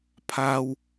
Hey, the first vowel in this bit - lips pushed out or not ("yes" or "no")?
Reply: no